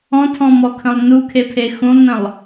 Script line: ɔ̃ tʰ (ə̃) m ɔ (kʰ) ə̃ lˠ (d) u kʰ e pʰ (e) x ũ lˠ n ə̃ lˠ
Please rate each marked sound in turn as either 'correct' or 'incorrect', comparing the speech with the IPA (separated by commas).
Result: incorrect, correct, incorrect, correct